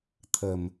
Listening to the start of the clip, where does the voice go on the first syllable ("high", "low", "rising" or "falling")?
low